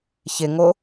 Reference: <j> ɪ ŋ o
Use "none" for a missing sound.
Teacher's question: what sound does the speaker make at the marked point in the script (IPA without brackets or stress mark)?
ç